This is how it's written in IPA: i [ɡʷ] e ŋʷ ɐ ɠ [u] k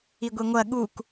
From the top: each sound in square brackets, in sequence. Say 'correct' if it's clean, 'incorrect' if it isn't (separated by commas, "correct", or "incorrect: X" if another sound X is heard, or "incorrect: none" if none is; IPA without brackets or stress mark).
correct, correct